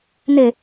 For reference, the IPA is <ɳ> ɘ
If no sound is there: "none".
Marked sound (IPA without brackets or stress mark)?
n